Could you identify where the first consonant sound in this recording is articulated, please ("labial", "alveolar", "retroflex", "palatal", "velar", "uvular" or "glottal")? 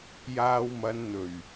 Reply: palatal